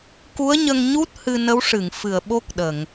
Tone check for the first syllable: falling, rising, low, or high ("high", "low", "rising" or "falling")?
rising